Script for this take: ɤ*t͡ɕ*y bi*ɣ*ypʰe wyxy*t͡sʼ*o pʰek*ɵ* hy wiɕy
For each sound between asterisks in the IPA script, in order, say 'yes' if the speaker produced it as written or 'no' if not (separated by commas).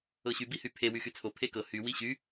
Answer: no, no, no, no